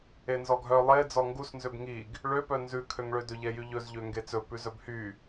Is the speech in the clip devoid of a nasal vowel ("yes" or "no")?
yes